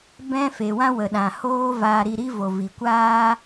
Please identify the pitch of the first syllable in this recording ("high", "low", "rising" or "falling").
high